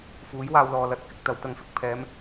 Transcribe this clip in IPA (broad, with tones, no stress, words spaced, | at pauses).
fuː˨˥jwaː˧wlɔː˨lɐ˨˥t̚ kɪ˧k̚ t̪ɐ˨˧wt̪ɐ˧ŋfɪ˨k̚ pʰɛː˨˧m